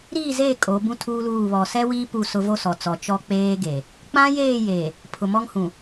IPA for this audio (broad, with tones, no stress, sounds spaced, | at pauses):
ɾ iː˦˨ z eː˦˨ kʼ o˨˦ b ũ˦ tʰ uː˦ l uː˦˨ β ɔ˨ s ɛ˦ w iː˦ p u˦˨ s ʊ˦ v o˦ s ɔ˨ t͡s ɔ˨ t͡ʃ ɔ˦ k͡p eː˦ ɡ e˨ | k͡p ã˦ j eː˦˨ j eː˨ | pʰ ʊ˨ m ɔ˦ ŋ h ũ˨